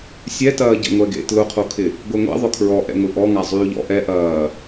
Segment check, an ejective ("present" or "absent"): absent